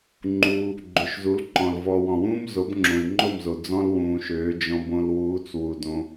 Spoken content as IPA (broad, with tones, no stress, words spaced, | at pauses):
ŋ͡ǃuː˧ | ɡ͡ǃø˨ʃzu˨˦lǃɔ̃˨l vɔ˨wɔ̃˨wũː˦m zo˨˦bŋ͡ǁõ˨i̯ŋ͡ǃo˦˨mzo˨ d͡zɔ̃˦l wũː˧ʃøː˨˦ d͡ʒɔ̃˧bõ˧lwuː˨˦t͡s wu˧dõ˦